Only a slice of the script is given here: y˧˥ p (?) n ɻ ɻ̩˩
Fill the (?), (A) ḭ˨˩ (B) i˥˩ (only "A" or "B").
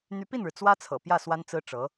B